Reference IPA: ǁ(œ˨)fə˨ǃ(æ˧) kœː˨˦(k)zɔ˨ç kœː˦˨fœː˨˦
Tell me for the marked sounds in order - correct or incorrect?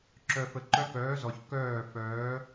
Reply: correct, incorrect: œ˧, incorrect: none

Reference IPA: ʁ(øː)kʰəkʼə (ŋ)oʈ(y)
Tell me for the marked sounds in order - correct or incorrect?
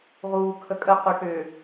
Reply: incorrect: uː, incorrect: q, incorrect: ʏ

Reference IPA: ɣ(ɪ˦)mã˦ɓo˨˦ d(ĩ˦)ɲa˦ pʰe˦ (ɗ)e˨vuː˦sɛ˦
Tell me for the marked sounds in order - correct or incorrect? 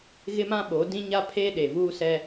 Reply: correct, correct, correct

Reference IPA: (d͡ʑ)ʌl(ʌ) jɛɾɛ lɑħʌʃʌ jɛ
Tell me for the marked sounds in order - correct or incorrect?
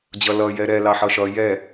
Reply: correct, correct

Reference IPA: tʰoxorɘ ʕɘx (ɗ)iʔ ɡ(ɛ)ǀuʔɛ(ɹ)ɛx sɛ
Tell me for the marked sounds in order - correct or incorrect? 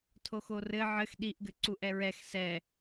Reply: correct, incorrect: ɘ, correct

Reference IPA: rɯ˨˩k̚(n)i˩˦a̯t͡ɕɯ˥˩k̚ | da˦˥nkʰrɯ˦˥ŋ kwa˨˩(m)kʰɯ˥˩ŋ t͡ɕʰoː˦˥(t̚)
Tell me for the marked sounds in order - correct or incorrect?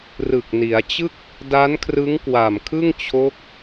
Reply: correct, correct, incorrect: k̚

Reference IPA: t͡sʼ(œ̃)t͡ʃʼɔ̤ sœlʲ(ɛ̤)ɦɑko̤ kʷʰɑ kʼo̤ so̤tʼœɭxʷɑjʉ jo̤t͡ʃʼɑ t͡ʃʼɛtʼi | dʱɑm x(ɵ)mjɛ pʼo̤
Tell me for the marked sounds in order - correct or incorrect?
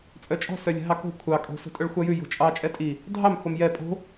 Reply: incorrect: œ, correct, incorrect: o

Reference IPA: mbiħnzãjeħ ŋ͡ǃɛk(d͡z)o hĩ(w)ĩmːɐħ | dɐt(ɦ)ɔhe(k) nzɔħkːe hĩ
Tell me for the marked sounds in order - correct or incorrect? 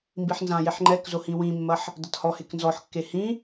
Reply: incorrect: z, correct, incorrect: h, correct

